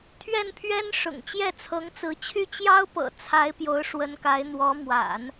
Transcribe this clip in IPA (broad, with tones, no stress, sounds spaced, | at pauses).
t̪ʰ ɥ ɛ˥˩ n pʰ ɥ ɛ˥ n ʂ ʊ̰˨˩ ŋ t͡ɕ j ɛ˥˩ t͡sʰ ɤ˧˥ ŋ t͡s ɹ̩˧˥ t͡ɕʰ y˥˩ t͡ɕ j ɑ˥ ʊ̯ p ɤ̰˨˩ t͡sʰ a˧˥ ɪ̯ p j o˧˥ ʊ̯ ʂ w ə˧˥ n k a˧˥ ɪ̯ n̪ w ɔ˧˥ m w a̰˨˩˦ n